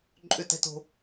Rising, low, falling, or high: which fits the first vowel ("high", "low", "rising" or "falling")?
falling